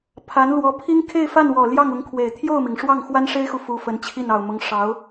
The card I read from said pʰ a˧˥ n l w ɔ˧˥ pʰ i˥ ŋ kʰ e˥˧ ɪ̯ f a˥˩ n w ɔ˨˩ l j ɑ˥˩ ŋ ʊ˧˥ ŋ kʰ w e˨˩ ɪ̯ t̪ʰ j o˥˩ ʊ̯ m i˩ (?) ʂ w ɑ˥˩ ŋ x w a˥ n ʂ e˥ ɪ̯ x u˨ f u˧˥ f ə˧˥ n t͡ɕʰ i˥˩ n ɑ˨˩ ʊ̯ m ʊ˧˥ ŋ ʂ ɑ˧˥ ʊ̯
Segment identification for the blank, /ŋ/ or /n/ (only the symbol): ŋ